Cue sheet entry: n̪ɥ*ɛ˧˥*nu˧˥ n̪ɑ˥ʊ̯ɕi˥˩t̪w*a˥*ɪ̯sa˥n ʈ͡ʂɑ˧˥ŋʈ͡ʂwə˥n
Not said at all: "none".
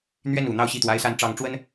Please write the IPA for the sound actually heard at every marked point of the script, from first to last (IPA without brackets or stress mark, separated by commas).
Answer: ɛ˥˩, a˥